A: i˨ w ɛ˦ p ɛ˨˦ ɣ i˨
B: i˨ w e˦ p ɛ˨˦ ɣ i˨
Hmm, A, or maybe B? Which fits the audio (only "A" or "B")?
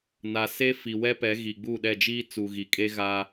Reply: A